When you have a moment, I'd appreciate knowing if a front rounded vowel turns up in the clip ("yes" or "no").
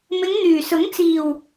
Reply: yes